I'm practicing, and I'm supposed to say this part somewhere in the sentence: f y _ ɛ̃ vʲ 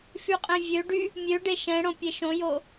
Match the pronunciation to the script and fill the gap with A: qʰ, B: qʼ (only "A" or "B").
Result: B